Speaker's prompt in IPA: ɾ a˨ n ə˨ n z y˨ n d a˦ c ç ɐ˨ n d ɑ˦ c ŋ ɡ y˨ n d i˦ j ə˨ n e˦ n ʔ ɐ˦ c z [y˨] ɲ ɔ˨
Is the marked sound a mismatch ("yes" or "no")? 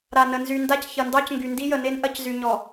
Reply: no